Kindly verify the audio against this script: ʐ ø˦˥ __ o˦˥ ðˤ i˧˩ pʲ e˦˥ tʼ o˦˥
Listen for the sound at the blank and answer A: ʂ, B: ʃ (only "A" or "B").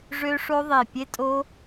A